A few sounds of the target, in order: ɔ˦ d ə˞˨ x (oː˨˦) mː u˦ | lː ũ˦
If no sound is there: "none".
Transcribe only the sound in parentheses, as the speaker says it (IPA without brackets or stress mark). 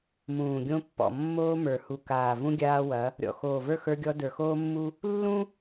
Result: oː˦